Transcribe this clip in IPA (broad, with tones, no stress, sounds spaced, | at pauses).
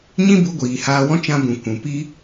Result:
ɲ ĩ˦ b u˧ ɡʷ iː˨ h aː˧ w ɔ̃˦ t͡ʃ ã˧ b ũ˨ kʷ ũ˨ p i˦